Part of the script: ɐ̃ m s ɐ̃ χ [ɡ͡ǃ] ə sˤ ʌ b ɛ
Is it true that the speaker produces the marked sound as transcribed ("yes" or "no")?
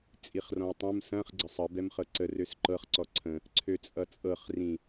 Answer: no